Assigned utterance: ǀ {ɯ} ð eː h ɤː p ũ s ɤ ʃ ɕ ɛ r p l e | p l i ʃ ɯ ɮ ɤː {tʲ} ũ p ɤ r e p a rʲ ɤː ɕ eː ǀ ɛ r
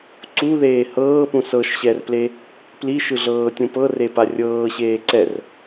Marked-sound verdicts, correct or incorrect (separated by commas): incorrect, correct